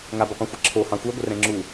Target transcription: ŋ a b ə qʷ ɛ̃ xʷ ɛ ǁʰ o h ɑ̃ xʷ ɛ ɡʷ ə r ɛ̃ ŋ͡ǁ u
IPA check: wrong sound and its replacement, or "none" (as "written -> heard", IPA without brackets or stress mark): none